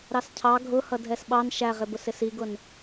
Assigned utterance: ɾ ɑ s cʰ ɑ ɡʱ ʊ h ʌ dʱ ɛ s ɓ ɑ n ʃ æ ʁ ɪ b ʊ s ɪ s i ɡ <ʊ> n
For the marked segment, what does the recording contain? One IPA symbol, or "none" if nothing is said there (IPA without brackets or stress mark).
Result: ʊ